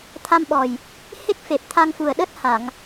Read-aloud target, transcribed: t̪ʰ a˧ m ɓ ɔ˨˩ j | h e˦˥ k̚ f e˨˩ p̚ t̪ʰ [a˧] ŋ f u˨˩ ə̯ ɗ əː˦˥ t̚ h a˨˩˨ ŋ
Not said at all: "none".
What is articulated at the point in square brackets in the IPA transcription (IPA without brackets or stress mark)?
a˧